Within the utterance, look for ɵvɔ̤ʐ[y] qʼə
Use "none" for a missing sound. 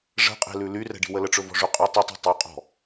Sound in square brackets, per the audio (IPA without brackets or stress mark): y